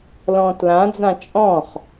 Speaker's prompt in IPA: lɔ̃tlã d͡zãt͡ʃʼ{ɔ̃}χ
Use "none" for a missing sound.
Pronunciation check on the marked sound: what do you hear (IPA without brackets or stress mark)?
ɔ̃